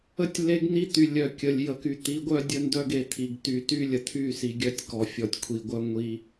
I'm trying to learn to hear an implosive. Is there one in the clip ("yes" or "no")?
no